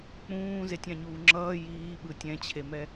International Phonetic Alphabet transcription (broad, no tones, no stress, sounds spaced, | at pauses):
k͡p ũː z e tʲ ã ɲ uː ŋ͡ǁ ʌː j iː ɓ ɯ tʲ ɛ̃ t͡ɕʰ e m ɛ